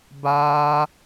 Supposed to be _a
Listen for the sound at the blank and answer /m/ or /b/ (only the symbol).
b